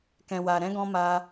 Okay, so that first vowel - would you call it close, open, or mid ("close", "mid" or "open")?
mid